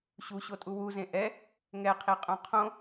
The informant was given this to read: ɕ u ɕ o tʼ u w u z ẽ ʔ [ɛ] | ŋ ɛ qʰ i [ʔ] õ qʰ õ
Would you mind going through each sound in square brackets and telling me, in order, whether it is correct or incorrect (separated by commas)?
correct, incorrect